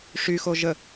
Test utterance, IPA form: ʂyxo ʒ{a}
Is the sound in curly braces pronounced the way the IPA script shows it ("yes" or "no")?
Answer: no